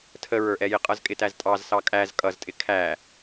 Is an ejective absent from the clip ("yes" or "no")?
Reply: no